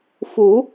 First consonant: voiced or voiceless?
voiceless